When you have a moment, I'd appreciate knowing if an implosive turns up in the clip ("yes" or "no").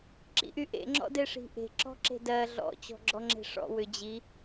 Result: no